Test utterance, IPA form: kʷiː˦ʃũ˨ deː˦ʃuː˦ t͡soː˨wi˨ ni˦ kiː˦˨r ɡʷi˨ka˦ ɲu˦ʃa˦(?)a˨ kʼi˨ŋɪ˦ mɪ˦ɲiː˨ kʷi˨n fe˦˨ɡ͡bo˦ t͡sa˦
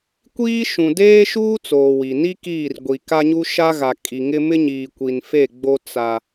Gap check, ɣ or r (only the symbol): ɣ